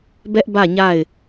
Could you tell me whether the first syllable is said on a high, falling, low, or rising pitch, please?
high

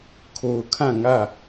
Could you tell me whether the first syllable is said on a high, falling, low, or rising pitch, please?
low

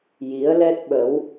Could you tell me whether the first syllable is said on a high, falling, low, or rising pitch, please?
rising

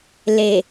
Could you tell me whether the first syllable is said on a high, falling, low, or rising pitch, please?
low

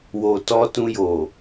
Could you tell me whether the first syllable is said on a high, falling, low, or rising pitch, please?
low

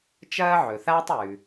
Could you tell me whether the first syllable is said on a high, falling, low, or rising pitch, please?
high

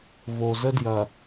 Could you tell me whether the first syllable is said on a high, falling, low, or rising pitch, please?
low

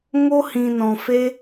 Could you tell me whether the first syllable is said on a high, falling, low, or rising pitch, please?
high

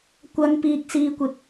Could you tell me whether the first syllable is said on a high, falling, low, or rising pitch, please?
low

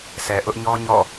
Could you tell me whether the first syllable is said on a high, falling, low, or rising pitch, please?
low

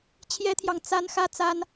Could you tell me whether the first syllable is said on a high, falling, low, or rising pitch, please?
high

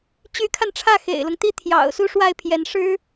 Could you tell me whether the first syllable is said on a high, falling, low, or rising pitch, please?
rising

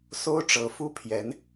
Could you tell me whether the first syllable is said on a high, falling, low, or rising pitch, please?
high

